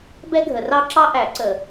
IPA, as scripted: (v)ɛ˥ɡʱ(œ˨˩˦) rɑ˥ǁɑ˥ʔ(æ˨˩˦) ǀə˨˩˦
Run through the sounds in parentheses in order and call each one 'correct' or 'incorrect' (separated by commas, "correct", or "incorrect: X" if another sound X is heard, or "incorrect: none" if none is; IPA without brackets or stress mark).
incorrect: b, incorrect: ə˨˩˦, correct